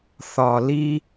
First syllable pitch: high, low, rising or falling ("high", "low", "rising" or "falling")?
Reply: low